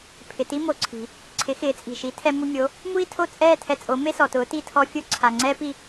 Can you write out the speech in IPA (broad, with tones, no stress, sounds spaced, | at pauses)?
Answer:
pʰ ɪ˩ t i˥ m o˩˥ ǀʰ i̤˩ | ǀʰ ɪ˩˥ x ɪː˩˥ t͡sʼ i̤˩ ʃ i˩˥ tʰ ɛ˧ m u˧ mʲ o˩˥ | m u˥ i̯ tʰ o˥˩ t͡sʼ ɛː˥˩ tʰ ɛ˧ t͡sʼ o˩˥ m e˥ s ɔ˩ t ʊː˩˥ t i˥ tʰ ɔ˧ fʲ ʊː˥ ǀʰ a˩ ŋ͡ǀ ɛː˥ p i˥˩